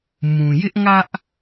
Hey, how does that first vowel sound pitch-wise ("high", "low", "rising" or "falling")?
low